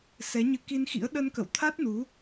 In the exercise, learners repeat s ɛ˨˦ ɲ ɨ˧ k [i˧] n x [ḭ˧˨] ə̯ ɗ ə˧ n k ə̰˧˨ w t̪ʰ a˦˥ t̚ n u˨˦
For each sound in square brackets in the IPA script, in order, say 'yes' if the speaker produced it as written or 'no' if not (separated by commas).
yes, no